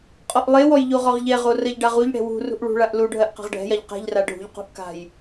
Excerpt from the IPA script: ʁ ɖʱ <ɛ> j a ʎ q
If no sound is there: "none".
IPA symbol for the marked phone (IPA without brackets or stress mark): ɛ̤